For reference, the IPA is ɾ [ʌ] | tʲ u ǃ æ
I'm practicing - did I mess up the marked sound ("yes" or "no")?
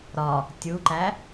yes